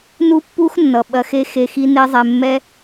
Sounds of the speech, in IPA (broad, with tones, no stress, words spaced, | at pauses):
nu˦pːu˦x nːʌ˨ ɓɐ˧xe˦xe˧ xi˦ne˦zˤɛ˧ mːɛ˦